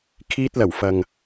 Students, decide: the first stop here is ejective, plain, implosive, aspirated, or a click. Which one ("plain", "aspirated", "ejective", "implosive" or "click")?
aspirated